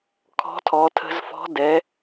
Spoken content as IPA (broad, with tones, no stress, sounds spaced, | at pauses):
kʰ ɔ̤˧˥ tʰ ɔ˩˧ tʰ ə̤˧ z f ɔ̤˧˥ d ɛ˩˧